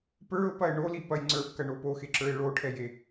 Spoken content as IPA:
p ə˞ ʊ̯ p ɐ ɪ̯ ɳ o l i p ɐ j ŋ͡ǀ ə˞ b k ɐ ɳ o p o x e ǁ ə˞ ɪ̯ ɭ o ʈʰ ɛ j e

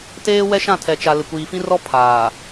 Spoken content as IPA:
t eː˦ w ɛ˦ ʃ ã˦˨ tʰ ɛ˨ t͡ʃ a˨ l ɪ˨ kʷ iː˨ f ĩ˦ r ɔ˦ pʰ aː˨

